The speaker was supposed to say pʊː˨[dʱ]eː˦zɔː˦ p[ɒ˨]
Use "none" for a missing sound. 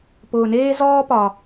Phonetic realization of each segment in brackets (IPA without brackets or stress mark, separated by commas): n, ɒ˨